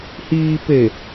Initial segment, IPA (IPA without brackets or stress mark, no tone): h